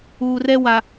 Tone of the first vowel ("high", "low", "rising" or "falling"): low